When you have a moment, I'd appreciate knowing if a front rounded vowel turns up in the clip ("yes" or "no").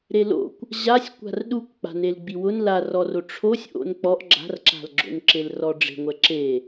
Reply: no